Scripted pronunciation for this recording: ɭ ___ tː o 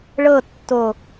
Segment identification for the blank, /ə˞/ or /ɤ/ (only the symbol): ɤ